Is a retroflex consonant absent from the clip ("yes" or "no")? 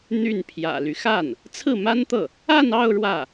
no